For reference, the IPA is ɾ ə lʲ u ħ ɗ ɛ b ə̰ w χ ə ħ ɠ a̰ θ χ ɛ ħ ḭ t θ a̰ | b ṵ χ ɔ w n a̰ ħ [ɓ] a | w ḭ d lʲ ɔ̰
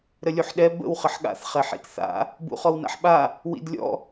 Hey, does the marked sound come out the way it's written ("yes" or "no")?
yes